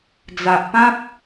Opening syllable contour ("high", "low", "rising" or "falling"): low